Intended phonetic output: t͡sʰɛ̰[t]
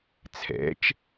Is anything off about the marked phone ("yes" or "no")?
yes